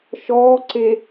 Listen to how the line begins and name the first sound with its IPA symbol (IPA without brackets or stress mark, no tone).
ʃ